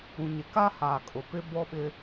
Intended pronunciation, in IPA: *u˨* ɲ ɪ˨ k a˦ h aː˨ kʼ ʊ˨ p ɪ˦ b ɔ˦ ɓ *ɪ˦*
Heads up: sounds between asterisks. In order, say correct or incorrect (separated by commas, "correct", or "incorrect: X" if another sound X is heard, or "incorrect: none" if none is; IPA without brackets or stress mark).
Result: incorrect: ũ˨, correct